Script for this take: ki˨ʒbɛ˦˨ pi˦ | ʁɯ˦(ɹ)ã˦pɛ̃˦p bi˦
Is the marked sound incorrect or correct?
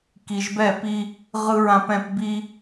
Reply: correct